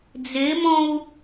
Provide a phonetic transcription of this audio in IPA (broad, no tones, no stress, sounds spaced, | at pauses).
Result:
d͡z e m ɔ̃ u̯